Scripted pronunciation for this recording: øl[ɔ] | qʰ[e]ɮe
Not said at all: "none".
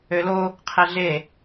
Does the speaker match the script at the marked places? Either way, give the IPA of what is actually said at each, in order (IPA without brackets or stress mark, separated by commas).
o, e